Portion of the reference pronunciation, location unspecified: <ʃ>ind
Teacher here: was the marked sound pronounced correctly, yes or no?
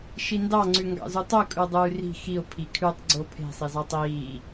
yes